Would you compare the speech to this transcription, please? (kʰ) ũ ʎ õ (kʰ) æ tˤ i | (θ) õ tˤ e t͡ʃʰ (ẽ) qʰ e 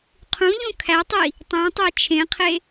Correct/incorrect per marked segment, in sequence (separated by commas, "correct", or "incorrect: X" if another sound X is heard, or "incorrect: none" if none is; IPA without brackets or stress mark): incorrect: qʰ, correct, incorrect: tˤ, correct